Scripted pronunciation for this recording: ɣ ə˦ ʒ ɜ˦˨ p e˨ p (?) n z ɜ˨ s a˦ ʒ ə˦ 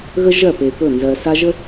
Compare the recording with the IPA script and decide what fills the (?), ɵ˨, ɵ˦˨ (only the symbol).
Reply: ɵ˦˨